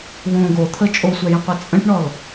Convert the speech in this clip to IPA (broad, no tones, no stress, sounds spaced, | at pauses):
w õ ɡ o t̪ʰ ə t͡ʃʼ o sʷ ɛ j ə̃ qʷ ɛ t͡sʼ ə̃ ʈ ɳ ɔ l